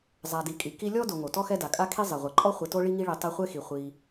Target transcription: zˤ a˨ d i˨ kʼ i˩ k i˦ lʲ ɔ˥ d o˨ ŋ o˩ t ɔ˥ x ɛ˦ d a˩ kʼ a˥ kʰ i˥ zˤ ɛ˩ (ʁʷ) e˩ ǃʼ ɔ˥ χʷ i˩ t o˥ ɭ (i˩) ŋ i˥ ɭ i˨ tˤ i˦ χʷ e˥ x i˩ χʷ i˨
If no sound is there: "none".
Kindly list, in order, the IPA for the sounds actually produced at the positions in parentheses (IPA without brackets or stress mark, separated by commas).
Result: ʁʷ, i˥